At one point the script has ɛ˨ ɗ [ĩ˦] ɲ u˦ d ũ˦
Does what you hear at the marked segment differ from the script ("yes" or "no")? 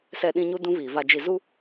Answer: no